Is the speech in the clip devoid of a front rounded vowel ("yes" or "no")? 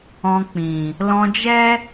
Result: yes